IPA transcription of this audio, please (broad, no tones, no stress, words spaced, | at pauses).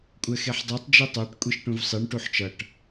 kʷʼɛxeħdˤɛtˤ d͡ʒitˤaʈ kʷʼiʃʈũvsˤiɳ ʈuħt͡ʃʌʈ